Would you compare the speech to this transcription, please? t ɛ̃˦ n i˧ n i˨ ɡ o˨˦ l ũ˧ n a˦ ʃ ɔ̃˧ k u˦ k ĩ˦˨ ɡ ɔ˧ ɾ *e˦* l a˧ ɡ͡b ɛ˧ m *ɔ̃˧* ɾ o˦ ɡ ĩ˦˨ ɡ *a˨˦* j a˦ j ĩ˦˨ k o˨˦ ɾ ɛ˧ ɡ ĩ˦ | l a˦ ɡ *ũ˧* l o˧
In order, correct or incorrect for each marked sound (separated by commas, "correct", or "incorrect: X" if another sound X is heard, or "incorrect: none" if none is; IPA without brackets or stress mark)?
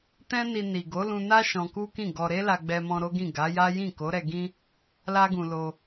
correct, correct, correct, correct